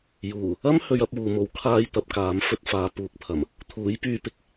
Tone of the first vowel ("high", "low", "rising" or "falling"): low